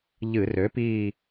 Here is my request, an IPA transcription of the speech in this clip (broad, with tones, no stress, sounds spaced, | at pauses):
ʎ ɨ˧˩˧ r ø˩˥ p iː˦˨